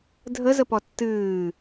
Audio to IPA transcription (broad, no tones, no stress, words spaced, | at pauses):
dʱəzə pɔtːɨː